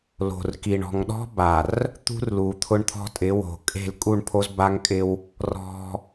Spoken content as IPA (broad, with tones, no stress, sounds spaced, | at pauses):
l o̤˨ r k i˨ ɳ ɔ̤˨ ŋ ɗ ɔ̤˦ b a˨ r | t̪ ṳ˦ r l u˨ t̪ʰ ʊ˦ ɳ t̪ʰ ɔ̤˦ tʼ ɪ˨˦ w o̤˨ kʼ e̤˦˨ l kʼ u˦˨ ɳ pʰ o˦ z b a˦ ŋ kʼ ɪ˦ w | r ɔ̤˦